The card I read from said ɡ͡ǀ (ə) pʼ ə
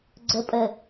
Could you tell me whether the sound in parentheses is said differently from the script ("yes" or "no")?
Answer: no